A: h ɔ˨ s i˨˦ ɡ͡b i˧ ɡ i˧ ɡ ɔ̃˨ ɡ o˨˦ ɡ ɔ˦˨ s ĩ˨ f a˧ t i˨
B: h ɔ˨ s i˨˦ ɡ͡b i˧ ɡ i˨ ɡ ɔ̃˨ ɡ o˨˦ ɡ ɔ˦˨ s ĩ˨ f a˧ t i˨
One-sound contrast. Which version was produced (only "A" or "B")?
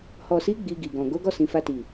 B